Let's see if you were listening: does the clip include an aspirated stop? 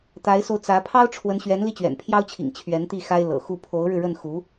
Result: yes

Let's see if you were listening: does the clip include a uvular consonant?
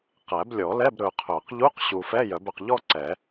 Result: yes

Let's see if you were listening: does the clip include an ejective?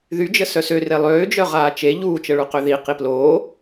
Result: no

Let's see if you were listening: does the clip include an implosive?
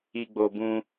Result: no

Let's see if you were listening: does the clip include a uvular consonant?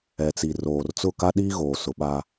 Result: no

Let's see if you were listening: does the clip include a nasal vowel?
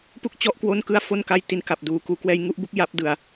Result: no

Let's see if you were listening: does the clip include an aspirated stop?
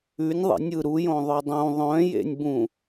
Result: no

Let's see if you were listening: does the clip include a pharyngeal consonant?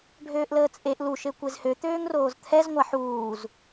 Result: yes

